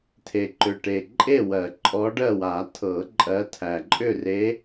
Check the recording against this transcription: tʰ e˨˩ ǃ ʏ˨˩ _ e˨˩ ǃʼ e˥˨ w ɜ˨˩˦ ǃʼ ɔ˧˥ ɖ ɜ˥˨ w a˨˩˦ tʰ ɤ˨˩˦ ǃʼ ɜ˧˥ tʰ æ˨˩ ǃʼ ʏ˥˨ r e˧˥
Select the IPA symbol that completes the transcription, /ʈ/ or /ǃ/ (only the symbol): ʈ